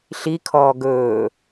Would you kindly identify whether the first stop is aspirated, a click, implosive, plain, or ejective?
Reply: aspirated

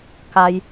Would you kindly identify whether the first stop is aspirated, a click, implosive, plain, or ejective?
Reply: plain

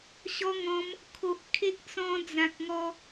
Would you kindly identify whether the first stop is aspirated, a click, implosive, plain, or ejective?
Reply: aspirated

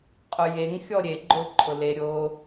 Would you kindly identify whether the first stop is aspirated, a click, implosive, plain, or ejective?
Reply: ejective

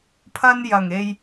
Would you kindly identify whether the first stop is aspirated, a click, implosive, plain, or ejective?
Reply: aspirated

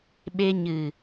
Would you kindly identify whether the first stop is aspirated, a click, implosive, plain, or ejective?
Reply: implosive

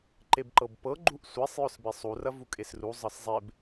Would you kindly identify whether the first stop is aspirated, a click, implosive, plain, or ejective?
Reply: click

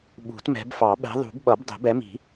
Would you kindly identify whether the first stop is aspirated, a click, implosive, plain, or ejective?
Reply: implosive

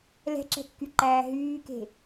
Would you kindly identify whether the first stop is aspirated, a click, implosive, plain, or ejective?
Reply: click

